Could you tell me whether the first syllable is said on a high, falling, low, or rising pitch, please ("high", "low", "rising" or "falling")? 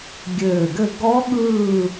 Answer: low